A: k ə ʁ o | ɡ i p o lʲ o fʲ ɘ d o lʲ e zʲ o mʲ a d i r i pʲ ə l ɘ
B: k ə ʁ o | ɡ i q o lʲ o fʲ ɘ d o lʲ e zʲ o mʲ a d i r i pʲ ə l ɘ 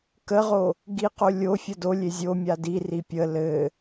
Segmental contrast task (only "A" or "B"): B